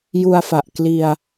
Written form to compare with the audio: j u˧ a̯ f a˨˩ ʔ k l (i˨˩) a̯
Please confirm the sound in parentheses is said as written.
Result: no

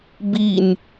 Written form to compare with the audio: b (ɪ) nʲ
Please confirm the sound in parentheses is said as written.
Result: no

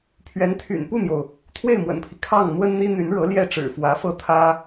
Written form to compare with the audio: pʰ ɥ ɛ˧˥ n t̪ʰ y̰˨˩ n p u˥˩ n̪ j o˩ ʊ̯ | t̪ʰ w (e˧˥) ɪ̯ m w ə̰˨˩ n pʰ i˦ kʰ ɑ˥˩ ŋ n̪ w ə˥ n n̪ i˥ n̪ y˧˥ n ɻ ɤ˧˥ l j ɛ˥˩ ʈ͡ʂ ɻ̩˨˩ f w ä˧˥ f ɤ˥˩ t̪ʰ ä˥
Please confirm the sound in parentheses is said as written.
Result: no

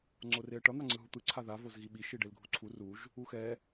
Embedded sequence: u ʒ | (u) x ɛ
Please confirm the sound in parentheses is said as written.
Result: yes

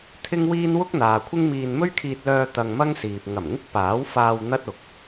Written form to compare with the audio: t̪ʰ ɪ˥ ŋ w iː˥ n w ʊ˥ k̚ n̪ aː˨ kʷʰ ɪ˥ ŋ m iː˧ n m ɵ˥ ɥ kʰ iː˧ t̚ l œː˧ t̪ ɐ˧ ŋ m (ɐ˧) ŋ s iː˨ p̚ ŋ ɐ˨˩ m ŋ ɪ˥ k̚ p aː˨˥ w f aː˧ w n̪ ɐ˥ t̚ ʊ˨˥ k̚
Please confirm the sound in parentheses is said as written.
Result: no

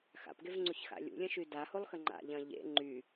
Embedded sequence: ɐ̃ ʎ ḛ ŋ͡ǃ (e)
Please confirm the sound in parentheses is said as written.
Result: no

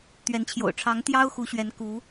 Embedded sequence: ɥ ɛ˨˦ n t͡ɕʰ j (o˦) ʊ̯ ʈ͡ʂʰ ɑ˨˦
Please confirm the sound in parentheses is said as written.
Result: no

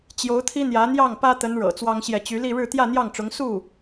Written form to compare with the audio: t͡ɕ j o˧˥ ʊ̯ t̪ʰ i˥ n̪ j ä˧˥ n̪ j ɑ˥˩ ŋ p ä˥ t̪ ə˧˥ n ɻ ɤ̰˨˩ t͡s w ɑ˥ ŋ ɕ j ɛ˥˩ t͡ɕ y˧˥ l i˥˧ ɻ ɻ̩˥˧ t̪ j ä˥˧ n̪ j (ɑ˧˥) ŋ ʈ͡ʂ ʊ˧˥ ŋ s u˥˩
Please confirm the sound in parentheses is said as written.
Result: no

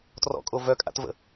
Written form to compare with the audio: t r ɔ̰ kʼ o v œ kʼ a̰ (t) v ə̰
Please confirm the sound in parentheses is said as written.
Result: yes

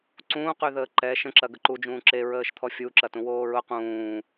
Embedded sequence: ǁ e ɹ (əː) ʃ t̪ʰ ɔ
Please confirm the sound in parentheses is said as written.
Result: yes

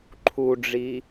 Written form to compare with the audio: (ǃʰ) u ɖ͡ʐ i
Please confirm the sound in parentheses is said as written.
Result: yes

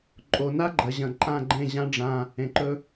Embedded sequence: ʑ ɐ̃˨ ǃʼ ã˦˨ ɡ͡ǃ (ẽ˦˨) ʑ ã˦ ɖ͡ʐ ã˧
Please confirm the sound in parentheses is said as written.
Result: yes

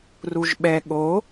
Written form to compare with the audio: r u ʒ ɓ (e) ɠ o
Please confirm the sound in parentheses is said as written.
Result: no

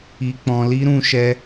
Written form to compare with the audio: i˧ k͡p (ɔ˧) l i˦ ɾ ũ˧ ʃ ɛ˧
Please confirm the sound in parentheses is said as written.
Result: no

